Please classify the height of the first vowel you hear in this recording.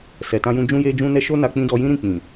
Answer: mid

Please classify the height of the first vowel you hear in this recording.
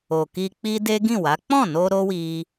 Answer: mid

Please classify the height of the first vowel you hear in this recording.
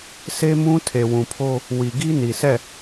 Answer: mid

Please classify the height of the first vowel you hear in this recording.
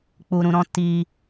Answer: high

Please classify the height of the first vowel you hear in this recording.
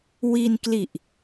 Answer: high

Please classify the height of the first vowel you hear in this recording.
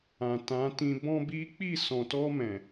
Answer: low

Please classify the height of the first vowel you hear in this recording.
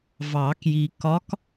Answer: low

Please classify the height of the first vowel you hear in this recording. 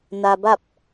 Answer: low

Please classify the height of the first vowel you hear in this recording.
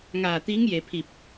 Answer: low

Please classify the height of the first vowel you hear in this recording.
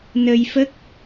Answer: mid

